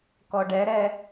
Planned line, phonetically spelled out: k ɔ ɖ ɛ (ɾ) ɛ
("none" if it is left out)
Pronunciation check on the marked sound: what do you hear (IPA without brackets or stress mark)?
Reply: ɾ